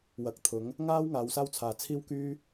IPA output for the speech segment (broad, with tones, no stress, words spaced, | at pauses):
wɐ˨˥k̚t̪ʰʊ˨˥ŋ | ŋaː˥w ŋaː˨˧wsaː˥w t͡sʰaː˨ t͡sʰiː˥wkyː˥